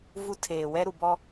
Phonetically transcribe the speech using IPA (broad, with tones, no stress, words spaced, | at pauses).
vu˦tʰeː˨ wɛ˦ɾu˨bɔ˦